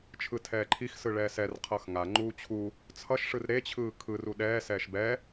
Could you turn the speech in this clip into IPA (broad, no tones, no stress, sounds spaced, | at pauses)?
t͡ʃʰ ɯ tʰ ɛː ǃʰ i x s ɯ ɭ ɛː s ɛ r qʰ ʌ x ŋ a ŋ͡ǃ uː t͡ɕʰ u | t͡sʰ ʌ ʃ ʂ ɯ r ɾ e t͡ɕʰ ɯː kʰ ɯ r u ɗ ɛː s ɛː ʃ b ɛ